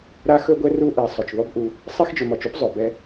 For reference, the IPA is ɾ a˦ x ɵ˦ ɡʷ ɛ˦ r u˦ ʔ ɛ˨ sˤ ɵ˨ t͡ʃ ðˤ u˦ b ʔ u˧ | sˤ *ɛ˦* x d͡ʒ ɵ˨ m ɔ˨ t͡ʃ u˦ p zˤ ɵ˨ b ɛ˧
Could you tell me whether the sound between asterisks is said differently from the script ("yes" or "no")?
no